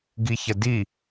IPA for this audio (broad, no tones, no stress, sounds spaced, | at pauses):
ɡ i ç ɐ d i